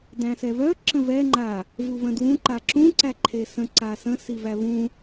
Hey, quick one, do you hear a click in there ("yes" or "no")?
yes